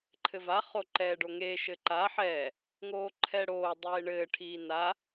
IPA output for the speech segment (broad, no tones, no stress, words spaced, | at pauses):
ǃʰɘva χoǃɛːɖoŋe ʃɘǃa ħɛ | ŋoːǃʰɛɽoː dˤeːɳɘː ʈʰiːna